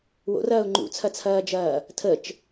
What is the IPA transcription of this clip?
wo̰rɐːʊ̯ ŋ͡ǃṵt͡sʰɐt͡sʰɐːd͡ʒɐː | tʰət͡ʃ

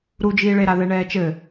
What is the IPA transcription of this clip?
ɾud͡ʒiːɭeɾa ðɛɳɛːt͡ʃɘ

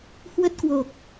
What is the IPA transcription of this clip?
hwə˦˥t̚kwo˨˩k̚

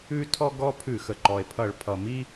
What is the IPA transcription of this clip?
ʉ˦tʰɔ˦ ɡɔ˦pʰʉ˧˩˧xə˩ ǃɔ˩e̯pʰʌ˧˩˧ɭ pʰʌ˩ mi˦

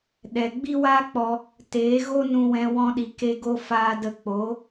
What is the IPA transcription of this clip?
ɗɛ˨ ɡ͡bi˦waː˦k͡pɔ˧ | teː˨˦ɣo˦nũ˧wɛ̃˧ wɔ̃˧ɗi˨ke˧ɡo˧ faː˧ də˧k͡po˨˦

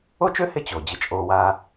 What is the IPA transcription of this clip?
o˥t͡ʃø˥ hɪ˥ t͡ɕo˩ d͡ʑɪ˧t͡ʃʼoː˧waː˥

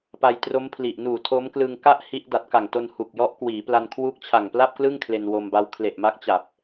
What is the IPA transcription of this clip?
pa˧jtro˦˥mpʰli˨˩ʔ nuː˨˩tʰo˦˥mklɯ˧ŋ ka˥˩ʔ hi˦˥ʔ da˨˩t̚ka˨˩ŋ to˧n hu˨˩k̚ jɔ˦˥ʔkwiː˩˦pla˧nkʰwuː˦˥k̚ t͡ɕʰa˨˩ŋpla˥˩p̚klɯ˥˩ŋ kʰle˧nwo˧mba˦˥w kʰle˨˩ʔma˦˥k̚t͡ɕa˨˩p̚

